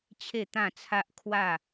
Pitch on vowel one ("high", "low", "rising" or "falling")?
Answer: falling